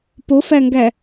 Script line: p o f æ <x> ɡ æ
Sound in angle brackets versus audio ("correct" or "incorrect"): incorrect